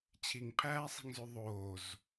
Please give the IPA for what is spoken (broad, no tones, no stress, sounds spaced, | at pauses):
t͡ɕʰ i ŋ pʰ æː sˤ i̤ ŋ z ʉ ðˤ oː z